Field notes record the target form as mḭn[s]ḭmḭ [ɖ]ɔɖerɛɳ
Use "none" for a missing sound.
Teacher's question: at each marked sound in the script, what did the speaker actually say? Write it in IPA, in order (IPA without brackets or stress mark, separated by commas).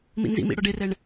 z, ɽ